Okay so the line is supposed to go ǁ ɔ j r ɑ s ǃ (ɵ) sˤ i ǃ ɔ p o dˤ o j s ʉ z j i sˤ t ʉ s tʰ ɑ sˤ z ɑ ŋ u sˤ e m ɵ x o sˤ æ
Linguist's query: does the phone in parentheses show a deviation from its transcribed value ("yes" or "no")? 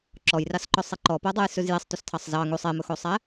no